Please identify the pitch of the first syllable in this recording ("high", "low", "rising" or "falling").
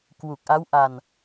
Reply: low